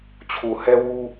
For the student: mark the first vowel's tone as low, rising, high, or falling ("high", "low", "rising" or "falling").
low